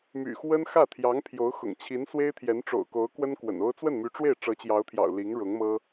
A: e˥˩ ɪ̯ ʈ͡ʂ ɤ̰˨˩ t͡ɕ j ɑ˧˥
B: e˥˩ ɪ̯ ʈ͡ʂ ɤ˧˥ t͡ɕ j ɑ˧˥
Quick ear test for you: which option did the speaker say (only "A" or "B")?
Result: B